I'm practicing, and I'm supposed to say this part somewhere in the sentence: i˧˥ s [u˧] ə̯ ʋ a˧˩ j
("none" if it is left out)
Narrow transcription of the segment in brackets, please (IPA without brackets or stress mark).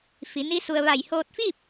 u˧